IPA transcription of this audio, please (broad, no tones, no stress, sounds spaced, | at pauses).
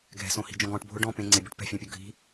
ɡʱ ɛ̤ s õ h i̤ d͡ʒ ɔ̃ ɡ ɔ̃ ʈ bʱ ʊ ɖ ɔ̃ p ẽ ŋ͡ǀ ɪ bʲ ʊ ʈ p ɛ̤ fʲ ã pʲ o ɡʱ i̤